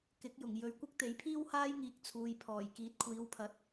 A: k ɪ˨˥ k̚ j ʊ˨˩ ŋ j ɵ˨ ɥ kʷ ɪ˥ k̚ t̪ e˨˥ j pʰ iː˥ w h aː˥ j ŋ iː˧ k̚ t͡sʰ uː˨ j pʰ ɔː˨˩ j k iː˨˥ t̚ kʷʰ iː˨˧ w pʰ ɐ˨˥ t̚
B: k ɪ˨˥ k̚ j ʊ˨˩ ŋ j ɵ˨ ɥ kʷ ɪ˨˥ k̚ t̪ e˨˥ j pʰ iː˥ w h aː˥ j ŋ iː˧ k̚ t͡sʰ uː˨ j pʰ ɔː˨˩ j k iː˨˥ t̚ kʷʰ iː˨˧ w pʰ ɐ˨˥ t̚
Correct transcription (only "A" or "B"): A